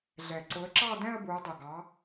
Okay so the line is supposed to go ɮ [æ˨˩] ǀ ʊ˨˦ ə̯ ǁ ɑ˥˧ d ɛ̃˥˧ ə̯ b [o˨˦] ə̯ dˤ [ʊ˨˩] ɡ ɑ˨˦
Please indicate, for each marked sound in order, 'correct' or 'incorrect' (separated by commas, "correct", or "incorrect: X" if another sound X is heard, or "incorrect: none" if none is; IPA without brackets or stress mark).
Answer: incorrect: ɛ˨˩, incorrect: u˨˦, correct